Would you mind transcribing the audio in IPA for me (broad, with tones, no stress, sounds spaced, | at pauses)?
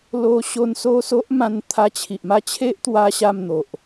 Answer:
l o˧ ɕ o˧ n s o˥˧ s o˦ ʔ m ã˧ n t̪ʰ a˧ t͡ɕʰ i˨ ʔ m a˥˧ t͡ɕʰ e˦ ʔ t̪ w a˦ ɕ a˥˧ m n̪ o˨ ʔ